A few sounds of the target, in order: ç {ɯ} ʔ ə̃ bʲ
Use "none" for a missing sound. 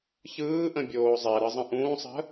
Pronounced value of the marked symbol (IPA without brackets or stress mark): ɯː